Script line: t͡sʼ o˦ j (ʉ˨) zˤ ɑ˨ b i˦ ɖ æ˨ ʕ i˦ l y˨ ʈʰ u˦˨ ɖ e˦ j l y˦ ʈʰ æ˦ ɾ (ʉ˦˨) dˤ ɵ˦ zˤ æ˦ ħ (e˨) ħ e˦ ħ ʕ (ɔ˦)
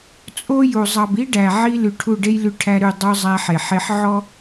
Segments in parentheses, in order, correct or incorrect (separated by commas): incorrect, correct, correct, correct